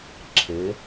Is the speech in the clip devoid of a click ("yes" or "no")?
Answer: no